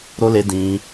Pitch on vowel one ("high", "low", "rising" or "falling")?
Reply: high